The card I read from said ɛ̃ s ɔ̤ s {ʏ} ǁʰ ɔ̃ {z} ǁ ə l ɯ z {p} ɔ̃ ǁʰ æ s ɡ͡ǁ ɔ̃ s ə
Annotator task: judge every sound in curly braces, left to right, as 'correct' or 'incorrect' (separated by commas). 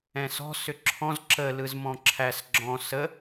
correct, correct, incorrect